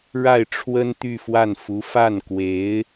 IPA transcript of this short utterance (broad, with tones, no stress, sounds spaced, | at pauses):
ɻ a˥˩ ɪ̯ ʈ͡ʂʰ w ə˥ n t̪ y˥˧ f w a˥˩ n f u˧˥ f a˥˩ n k w e˧˥ ɪ̯